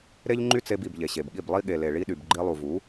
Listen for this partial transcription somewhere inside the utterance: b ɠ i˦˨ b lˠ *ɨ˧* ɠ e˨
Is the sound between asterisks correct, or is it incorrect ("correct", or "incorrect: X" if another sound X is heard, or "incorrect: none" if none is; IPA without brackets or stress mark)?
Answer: incorrect: i˧